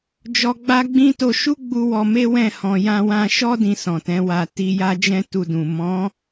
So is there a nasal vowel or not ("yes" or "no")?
yes